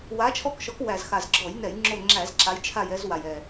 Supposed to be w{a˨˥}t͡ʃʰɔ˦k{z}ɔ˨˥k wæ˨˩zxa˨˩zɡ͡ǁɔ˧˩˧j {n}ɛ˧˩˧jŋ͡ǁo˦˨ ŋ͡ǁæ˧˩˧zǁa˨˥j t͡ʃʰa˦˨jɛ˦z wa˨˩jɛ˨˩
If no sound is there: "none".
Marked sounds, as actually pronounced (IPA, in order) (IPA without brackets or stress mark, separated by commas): a˨˥, ʃ, n